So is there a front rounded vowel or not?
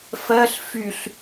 yes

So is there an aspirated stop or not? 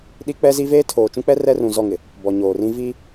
yes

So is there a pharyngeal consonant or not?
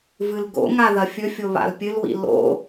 no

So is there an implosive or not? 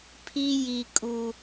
no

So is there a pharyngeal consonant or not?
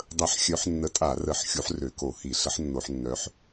yes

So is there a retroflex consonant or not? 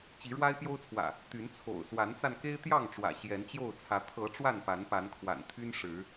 yes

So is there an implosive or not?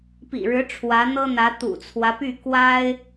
no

